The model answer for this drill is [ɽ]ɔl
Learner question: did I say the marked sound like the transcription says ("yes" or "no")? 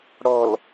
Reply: yes